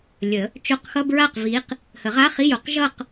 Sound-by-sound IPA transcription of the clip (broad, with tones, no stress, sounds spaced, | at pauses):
lʲ ə˨˩˦ | t͡ʃ o˧˥˧ q x ʌ˧˥˧ b ɹ a˥˩ q v i˨˦ q | h ə˨˩˦ ʁ a˧˥˧ χ i˧˥˧ j o˨˩˦ q ʒ ʌ˥˧ q